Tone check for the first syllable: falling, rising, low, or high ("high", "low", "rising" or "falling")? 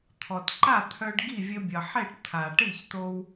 low